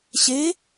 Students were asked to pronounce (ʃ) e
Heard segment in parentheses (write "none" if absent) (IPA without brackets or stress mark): ɕ